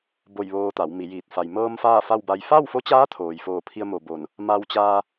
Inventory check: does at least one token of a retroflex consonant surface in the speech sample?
no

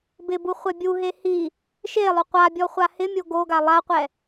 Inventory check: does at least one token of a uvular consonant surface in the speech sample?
yes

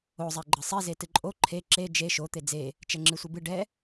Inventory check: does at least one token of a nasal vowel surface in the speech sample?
no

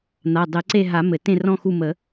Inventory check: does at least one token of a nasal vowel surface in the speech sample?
yes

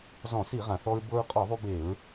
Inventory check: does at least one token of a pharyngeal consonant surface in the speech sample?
no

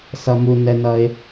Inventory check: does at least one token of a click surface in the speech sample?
no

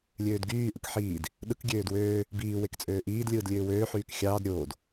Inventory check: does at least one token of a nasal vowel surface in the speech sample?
no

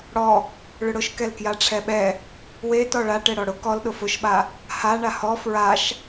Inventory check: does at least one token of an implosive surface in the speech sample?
yes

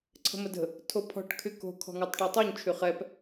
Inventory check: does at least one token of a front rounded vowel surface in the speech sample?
yes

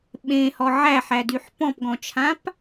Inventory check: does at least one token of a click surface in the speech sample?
no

